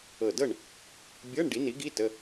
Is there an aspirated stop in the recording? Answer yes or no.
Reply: no